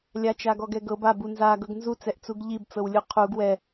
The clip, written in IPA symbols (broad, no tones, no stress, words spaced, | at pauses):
lʲa t͡ʃaɡɔɡɛɡɤb a bunza ɡɤɡnzu t͡sɛʔt͡suɡʎib t͡sɤwlʲuqʰuɡ wɛ